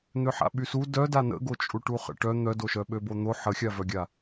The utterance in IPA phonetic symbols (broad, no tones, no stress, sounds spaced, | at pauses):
n̪ ø ħ a̰ ɓ y s u d œ d a n ə̰ ɡ o t͡ʃʼ u ʈ u χ ə̰ ʈ œ n̪ œ d o ʃ œ ɓ ø b o n̪ o ħ ə xʲ a v œ ɡʲ a